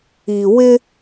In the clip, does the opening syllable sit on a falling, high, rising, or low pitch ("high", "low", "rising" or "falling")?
low